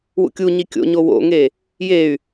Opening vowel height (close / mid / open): close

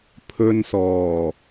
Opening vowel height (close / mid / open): mid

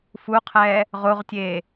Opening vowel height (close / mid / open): close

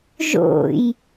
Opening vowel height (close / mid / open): mid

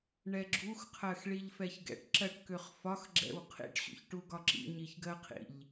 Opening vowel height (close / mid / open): mid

